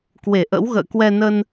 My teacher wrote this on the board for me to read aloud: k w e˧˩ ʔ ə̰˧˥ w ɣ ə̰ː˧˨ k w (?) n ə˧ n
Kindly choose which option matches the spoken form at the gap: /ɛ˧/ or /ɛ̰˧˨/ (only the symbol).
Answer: ɛ˧